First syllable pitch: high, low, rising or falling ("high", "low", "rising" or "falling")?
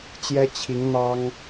high